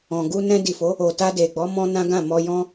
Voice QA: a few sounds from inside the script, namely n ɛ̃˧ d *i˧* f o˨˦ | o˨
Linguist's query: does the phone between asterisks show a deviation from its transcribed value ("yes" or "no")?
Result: yes